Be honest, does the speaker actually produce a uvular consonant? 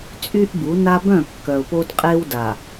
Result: yes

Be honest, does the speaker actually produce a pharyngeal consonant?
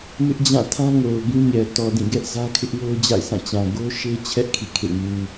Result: no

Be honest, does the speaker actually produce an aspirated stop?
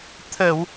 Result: yes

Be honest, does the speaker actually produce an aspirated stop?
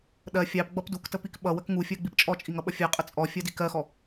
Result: no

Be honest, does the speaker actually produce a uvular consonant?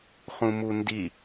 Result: yes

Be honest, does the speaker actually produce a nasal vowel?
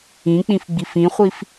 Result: yes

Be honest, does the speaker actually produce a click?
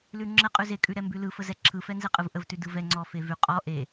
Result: yes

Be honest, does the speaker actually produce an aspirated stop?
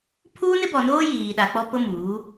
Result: yes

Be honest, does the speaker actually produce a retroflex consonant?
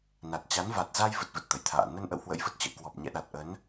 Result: no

